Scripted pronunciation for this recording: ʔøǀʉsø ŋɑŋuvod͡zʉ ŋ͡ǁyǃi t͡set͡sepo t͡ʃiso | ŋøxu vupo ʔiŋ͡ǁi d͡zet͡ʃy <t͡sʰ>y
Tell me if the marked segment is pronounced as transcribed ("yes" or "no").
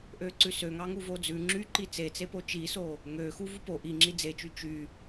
no